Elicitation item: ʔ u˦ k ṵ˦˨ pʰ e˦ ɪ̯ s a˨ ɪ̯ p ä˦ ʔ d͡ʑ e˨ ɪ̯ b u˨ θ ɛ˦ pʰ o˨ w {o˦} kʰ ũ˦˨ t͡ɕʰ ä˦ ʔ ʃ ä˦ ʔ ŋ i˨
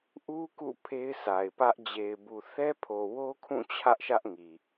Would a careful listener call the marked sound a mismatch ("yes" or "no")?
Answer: no